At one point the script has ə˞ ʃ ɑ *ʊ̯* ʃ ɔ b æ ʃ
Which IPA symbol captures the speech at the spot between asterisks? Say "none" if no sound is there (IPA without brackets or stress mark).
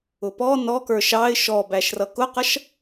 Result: ɪ̯